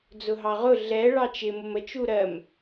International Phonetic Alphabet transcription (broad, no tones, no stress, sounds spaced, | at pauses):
d͡z ʊ ɦ ɑ ʁ ʊ ɮ ɛ ɭ ɑ t͡ʃ ɪ m ʊ m ə t͡ʃ u ɾ ɜ m